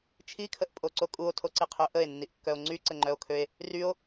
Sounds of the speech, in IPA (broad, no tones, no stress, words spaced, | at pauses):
t͡ʃʰikʰəʔpʼoǀo kʼuo̯tʰoǀiqʰø ʔəe̯nːiʔkːœo̯ ŋ͡ǀyǀəŋ͡ǃœo̯kʰøe̯ | ryo̯